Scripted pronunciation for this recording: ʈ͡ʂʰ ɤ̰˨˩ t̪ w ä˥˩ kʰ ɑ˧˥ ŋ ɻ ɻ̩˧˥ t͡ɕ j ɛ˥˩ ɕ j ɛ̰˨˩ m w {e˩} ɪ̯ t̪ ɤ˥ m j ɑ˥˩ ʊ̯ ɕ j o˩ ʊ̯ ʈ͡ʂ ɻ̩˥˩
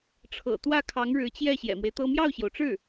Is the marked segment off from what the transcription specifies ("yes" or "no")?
yes